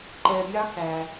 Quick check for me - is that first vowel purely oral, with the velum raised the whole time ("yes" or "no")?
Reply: yes